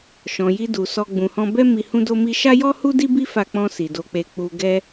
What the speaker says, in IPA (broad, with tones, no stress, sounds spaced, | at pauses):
ʃ ɔ̃˨ j i˧ d u˨ s ɔ˧ ɡ͡b ũ˨ h ɔ̃˧ b ɛ˦ m i˧ h ũ˦ d o˦ m i˦ ʃ a˦ j ɔ˦ h u˦ d i˦ b i˦ f a˧ k͡p ɔ̃˧ s i˨ d o˧ k͡p e˧ k͡p u˧ ɡ ɛ˦